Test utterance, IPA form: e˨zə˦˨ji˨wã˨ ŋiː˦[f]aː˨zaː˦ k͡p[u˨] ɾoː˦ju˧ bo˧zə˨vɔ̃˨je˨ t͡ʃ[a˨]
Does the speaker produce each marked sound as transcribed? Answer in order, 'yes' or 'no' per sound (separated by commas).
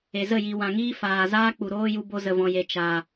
yes, yes, yes